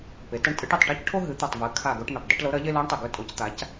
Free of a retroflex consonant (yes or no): no